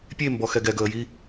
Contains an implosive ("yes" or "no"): no